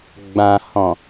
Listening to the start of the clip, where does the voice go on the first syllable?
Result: low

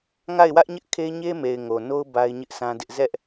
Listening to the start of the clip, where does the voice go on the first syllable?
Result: falling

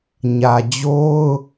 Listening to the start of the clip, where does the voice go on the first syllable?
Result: low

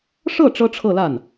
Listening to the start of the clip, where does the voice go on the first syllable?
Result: falling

